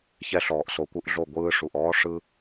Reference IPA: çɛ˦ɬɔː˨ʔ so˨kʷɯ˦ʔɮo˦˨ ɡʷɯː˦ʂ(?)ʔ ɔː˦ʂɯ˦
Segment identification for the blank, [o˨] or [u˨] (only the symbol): u˨